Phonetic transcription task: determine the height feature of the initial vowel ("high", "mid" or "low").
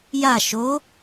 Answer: low